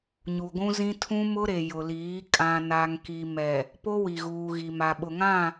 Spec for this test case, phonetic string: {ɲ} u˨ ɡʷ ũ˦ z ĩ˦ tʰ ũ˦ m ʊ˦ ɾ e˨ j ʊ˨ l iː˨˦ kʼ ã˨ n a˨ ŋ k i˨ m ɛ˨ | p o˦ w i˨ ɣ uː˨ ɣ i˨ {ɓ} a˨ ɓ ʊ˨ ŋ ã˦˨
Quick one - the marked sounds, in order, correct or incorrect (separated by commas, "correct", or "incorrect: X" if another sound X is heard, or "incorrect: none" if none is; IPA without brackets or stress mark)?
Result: correct, incorrect: m